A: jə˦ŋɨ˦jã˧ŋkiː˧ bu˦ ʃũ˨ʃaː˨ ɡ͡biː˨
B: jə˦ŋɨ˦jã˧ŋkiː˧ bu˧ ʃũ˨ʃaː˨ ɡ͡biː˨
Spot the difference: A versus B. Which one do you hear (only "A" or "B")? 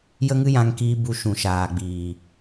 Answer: B